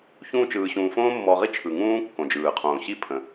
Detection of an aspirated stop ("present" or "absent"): present